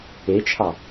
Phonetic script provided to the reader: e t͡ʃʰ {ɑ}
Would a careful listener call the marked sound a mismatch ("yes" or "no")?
no